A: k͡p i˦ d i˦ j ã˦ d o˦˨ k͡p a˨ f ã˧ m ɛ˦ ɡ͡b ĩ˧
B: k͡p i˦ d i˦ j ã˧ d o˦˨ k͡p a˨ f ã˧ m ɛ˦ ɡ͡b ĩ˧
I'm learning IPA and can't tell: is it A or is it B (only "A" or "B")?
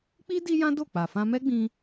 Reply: A